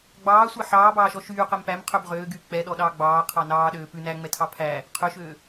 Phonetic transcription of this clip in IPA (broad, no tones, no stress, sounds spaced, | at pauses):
ɡ͡b ɑː sʷ ɛ ħ ɑː b ɑː ʃ ɔ ʃ yː q ɛ m p æ m qʰ ø b ʁ øː ɡ yː k͡p ɛ ɗ ɔ ɗ ɑː ɡ͡b ɑː qʰ ɑ n ɑː ɗ øː p ʉ n æ ŋ͡m ɛ tʰ ɑ pʰ æ | qʰ ø ʃ øː